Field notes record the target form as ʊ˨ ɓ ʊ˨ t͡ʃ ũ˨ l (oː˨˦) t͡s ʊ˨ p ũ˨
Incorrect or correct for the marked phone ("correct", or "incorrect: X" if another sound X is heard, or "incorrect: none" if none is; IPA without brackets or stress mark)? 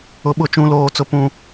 incorrect: oː˨